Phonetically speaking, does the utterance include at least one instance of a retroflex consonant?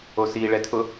yes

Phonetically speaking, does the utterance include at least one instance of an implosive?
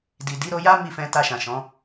no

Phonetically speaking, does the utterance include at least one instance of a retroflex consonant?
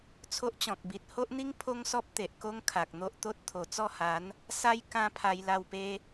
no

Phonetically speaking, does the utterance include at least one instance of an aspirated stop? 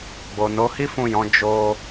no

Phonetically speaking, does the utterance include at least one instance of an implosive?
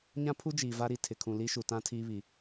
no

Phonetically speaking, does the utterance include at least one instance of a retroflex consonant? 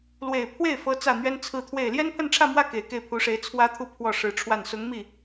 yes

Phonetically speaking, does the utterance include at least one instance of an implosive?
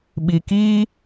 yes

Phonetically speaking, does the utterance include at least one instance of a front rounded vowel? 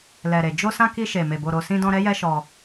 no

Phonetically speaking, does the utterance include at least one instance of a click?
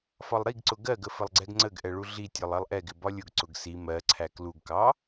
yes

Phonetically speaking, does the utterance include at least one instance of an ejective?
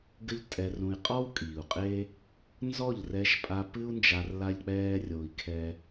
yes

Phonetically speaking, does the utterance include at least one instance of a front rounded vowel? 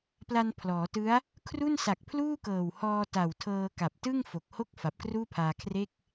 no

